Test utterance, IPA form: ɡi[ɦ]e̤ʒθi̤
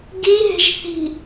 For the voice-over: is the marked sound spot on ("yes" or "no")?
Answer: yes